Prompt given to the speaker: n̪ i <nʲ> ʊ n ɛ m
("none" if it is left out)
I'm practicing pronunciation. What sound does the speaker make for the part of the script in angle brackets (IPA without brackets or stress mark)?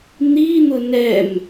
n̪